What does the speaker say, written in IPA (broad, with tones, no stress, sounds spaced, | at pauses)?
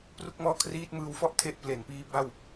p r u˥˩ k̚ m ɔː˥˩ kʰ r iː˥˩ t̚ m ɯː˧ w f ɔ˥˩ ʔ tʰ e˦˥ ʔ p l e˩˦ n p iː˦˥ b a˥˩ w